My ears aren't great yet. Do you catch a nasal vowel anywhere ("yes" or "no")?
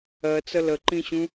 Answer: yes